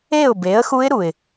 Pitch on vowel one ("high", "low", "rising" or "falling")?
falling